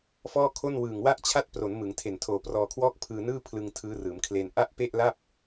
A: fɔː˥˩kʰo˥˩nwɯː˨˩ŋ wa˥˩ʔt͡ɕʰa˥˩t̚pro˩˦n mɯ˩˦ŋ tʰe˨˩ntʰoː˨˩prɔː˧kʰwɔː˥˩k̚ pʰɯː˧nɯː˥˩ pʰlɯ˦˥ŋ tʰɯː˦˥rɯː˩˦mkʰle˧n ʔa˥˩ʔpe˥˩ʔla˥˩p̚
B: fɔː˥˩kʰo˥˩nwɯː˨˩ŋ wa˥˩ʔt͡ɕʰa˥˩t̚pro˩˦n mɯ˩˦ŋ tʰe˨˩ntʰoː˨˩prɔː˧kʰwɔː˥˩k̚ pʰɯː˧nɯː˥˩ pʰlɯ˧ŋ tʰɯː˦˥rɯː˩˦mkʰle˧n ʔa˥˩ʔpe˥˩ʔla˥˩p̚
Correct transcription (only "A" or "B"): B